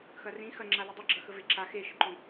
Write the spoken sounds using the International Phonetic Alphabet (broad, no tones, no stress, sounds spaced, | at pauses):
x ɐ r ĩ x ɐ ŋ͡ǁ a l ɨ dˤ ɐ ɡ͡ǁ ɐ x ə v e ǁ a x e ʃ ə ǃ õ